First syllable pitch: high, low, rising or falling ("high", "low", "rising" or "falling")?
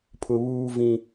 low